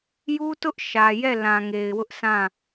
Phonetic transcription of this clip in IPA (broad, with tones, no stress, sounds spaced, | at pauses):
j u˦ t ʊ˦ ʔ ʃ ä˨ j ɛ˦˨ l ã˨ ŋ e˨ ɪ̯ w ʊ˦ ʔ sʰ ã˦˨